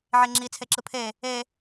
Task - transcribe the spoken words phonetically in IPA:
ʕ e ŋ͡ǁ i t͡sʰ e ǁ ɯ pʰ e | e

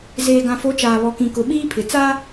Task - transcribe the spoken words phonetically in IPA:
z eː˨ ɡ ã˨ f o˨˦ t͡ʃ aː˨ β ɔ˨ k ĩ˨ k ʊ˨ ɓ iː˦ pʰ ɪ˨ t͡s a˦

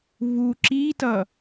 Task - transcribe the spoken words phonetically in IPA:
v u ǁ i t ʌ

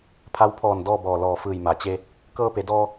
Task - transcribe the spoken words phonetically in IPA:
pʰ a˧˥ w pʰ ɔː˧˩ n d ɔː˥˨ b ɔː˧˩ l ɔː˧˩ f ɯː˧˩ j m a˩ t͡ɕ e˧ | k ɤː˧ p e˩˧ d ɔː˧

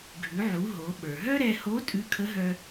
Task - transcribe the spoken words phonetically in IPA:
ɡʱ ʉ˩˧ ʕ u˩˧ ɦ o˩˧ ɓ ə˞˩ ɦ œ˥ ɾ ɛ˧ h o˧˥ tʼ ʉ˧˥ kʰ ə˧˥ ɦ œ˧

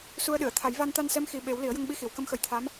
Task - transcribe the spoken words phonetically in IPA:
s u˧ ə̯ ɗ ɨ˨˩˨ ə̯ t̪ʰ a˨˩˦ j v a˧ n t̪ a˧ n s ɛ˧˥ m x i˨˩ ɓ e˨˩˦ w l i˨˩˦ ə̯ j ə˧ ŋ ɓ i˧ x i˨˩˨ w k ə˧˥ m x ə˨˩ j t̪ʰ a˧˥ m

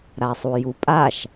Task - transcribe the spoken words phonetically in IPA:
ɾ a sˤ u j u pʼ a ʃ

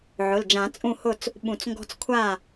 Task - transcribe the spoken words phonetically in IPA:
ʕ ʊ˩˧˩ l d͡ʒ ã˨˩˦ t͡sʼ ũ˥˨ h ʊ˥˨ t͡s | ɓ ũ˨˩˦ t͡s ŋ ɡ ɔ̤˦ t͡s kʷʰ a˥˨

